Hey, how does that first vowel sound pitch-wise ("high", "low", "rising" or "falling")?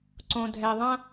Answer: low